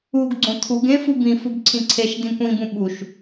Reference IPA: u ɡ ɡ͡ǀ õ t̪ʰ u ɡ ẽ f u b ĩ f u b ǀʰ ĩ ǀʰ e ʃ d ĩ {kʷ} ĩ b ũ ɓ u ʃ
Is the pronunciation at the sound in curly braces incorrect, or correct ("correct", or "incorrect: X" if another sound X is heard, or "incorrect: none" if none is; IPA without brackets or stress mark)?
correct